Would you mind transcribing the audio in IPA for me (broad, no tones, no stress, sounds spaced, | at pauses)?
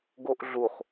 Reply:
ɡ o ʔ ɮ u χ